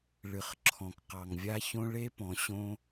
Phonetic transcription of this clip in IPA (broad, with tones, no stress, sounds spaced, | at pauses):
ɭ ɨ˨ χ ǁʰ ɔ̃˨ k q ɑ˨ ŋ vʲ a˧ ç õ˧ ɭ e˧ p ɔ̃˨ ɕ õ˧